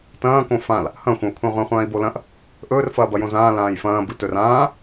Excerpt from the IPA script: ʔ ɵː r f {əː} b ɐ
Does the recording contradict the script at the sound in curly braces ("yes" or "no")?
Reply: yes